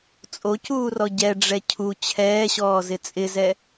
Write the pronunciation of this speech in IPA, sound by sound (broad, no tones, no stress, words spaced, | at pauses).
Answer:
t͡sʼocuːrɔ ɟɛɖ͡ʐɛ cʰu t͡ɕʰɛːɕɔːzɪ t͡sʼɪzɛ